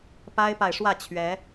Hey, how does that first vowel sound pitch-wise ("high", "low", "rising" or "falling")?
high